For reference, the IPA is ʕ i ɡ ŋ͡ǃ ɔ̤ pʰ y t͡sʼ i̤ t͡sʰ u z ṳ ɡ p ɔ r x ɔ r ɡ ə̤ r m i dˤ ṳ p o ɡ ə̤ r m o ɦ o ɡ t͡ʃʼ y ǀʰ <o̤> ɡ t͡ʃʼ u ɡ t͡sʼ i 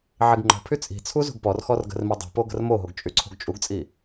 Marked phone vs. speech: correct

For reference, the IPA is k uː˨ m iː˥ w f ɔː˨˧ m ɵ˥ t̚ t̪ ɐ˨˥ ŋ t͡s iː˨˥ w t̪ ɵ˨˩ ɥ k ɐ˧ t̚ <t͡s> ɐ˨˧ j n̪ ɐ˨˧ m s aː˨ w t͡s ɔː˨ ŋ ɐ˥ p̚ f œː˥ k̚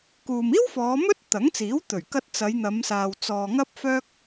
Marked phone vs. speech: correct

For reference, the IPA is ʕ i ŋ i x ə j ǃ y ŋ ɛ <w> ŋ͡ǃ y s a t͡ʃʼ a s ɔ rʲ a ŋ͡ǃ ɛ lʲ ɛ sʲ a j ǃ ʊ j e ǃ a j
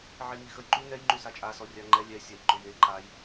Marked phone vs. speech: incorrect: j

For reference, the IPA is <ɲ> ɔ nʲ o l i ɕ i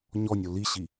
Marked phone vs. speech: correct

